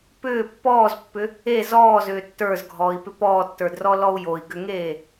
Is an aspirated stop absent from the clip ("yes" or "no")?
yes